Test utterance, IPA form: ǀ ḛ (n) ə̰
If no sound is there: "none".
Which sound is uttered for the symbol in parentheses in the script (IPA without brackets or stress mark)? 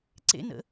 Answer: n